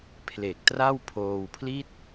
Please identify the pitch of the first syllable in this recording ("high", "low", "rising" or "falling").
low